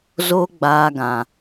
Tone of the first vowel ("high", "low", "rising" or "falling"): high